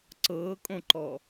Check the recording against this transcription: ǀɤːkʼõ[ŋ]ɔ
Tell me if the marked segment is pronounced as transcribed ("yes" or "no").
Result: no